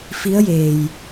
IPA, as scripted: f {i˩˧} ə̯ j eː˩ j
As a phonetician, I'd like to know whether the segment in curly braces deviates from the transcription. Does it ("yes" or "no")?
yes